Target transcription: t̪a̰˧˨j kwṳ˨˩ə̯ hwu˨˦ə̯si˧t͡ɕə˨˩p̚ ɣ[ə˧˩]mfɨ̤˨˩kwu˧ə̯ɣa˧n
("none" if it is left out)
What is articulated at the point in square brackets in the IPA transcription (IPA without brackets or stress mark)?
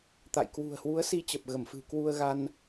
ə˧˩